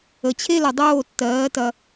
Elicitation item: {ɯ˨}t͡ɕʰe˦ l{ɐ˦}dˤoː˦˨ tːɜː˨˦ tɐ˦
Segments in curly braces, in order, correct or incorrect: incorrect, incorrect

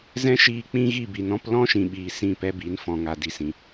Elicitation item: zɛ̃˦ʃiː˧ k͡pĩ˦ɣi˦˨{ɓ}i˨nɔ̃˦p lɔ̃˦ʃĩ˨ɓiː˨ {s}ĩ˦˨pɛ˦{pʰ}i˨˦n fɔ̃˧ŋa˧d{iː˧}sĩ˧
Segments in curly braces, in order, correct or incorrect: incorrect, correct, incorrect, incorrect

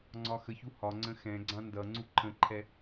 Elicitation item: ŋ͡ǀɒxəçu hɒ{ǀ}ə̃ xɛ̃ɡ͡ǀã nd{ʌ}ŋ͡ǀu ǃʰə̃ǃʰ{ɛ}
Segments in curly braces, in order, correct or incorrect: incorrect, correct, correct

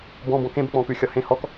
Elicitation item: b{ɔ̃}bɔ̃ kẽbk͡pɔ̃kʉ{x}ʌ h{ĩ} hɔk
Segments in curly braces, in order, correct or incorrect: correct, incorrect, incorrect

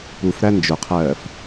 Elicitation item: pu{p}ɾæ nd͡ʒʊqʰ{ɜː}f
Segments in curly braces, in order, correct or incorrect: incorrect, correct

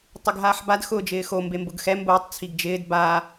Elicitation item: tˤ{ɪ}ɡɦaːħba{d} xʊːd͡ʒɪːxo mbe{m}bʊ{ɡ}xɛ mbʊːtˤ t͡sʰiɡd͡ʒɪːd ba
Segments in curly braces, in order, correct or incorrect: correct, correct, correct, correct

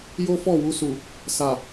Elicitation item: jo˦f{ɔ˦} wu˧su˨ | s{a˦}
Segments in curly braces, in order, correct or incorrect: incorrect, incorrect

